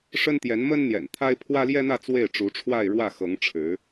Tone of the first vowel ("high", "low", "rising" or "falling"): high